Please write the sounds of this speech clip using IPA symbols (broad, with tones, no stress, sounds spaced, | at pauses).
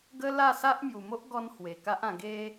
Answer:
ɡ ə˦ l a˥˧ s a˦ ʔ m j u˨˩ m o˦ ʔ ɡ ɔ˦ n h w e˨˩ k a˦ ʔ ã˧ ɡ e˦